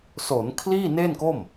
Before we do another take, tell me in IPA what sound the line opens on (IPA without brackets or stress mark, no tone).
s